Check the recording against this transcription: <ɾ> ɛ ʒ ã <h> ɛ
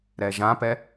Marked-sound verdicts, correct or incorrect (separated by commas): correct, incorrect